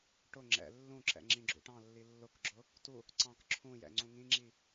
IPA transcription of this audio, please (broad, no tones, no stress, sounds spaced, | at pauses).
ʈ ʊ ŋ͡ǁ ɛ̰ lː ũ ǁ ɛ̰ ŋ͡ǁ ĩ ɡ͡ǁ ṵ ʈ ɑ̃ lː i lː ʊ k ɡ͡ǁ ʊ | t u | ǀ ɑ̃ k ǁʰ ũ j ɛ̰ ŋ͡ǀ ũ ŋ ĩ ŋ͡ǁ i